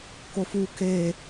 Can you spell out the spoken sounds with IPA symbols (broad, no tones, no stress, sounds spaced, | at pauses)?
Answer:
k o f u k e